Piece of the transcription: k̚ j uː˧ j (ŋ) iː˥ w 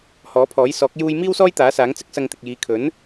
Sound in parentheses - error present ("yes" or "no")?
yes